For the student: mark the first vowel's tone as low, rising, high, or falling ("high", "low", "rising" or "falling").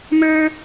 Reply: high